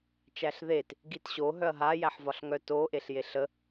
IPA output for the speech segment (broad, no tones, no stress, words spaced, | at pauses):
t͡ʃæɬðet | ɡitɕo ɦœɐ̯ɦa jæħvɒɬŋœ to ʔeɬjeɬə